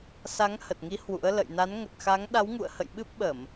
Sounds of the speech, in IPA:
sa˨˦ŋhə˨˩t̚ŋi˨˦ hwṵ˧˥ə̯lə̰˧˨j na˨˦nŋə˨˩t̚xa˨˦ŋ ɗa˨˦wŋṵ˧˨ə̯hə̰˧˨j ɓɨ˦˥p̚ɓə˧˩˨m

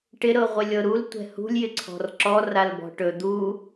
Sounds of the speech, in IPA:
ʈɪɾɤʁʷɪlʲɤ ɾultʷɛ̤ hṳlʲjɪǀʰɔ̤r ǁɔralbɔ̤ ʈɵ d̪u

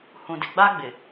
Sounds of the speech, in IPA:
hũ˨dɪ˨ɡ͡ba˦ ɡ͡bɪ˨

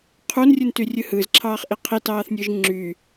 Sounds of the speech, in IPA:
qʰunrʲɯnty rʲɯhɯzǁʰɑːχʔi qʰitɑːθnʲɯʒ ŋ͡ǁy

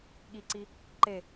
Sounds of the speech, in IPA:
ɠiǀi | ǃe

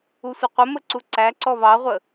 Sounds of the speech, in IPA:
usʷəqʷəmə ǀuǀæǀɔ βɑʁʷə

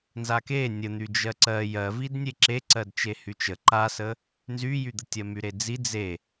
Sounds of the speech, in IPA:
nzake nʲən̪y d͡ʒɜǀɜ jɜvid nʲeǁe ǀɜdt͡ʃehyt͡ʃə ǃasə | nzyjyd̪ətʲɜ myɾed͡zi d͡ze

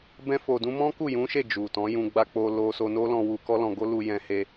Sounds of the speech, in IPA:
bɛ̃˦fo˧dũ˦ mɔ̃˦ku˦˨jũ˨˦ʃe˦˨ d͡ʒu˨tɔ̃˨˦jũ˧ ɡ͡ba˧k͡po˧ lo˧ so˧no˦lɔ̃˧ wu˧ kɔ˦lɔ̃˧ɡo˦ lu˧jɛ̃˧he˧

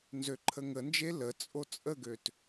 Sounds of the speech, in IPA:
nzøǃʰəŋənd͡ʒe lə t͡sʼot͡sʼəɡøt

